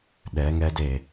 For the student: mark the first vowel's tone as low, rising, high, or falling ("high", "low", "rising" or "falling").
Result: rising